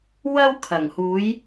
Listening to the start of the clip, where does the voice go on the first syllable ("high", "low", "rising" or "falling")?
high